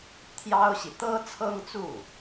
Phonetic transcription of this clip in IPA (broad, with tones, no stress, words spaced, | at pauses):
t̪ʰjɑ˥ʊ̯ɕi˨ t̪ɤ˥t͡sʰɤ˥ŋt͡su˥˩